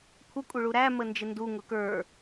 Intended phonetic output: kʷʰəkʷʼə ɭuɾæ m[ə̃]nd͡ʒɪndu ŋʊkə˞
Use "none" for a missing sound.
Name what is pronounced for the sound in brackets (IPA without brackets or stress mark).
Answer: ə